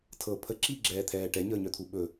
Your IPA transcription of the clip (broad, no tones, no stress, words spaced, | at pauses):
tʰɤ pʰə ǁiɡ͡ǁɛːt̪ʰɛː ʈɛɲəːɲœt̪ʰu ɓɵ